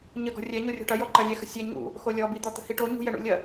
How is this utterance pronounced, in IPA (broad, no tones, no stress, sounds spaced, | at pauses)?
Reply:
ɲ ə ɡ ɔ̤ rʲ ɛ ɲ o rʲ ɔ̤ ʈ ɐ j ɔ ǃ ɐ lʲ ɛ x ə̤ sʲ ɛ ɲ ṵ | x o lʲ ɔ b i d̪ ɔ t̪ ə̤ h i ʈ o ɲ ṳ j ɛ ɳ ṵ lʲ ɐ